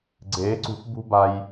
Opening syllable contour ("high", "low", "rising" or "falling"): rising